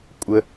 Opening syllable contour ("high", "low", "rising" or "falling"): high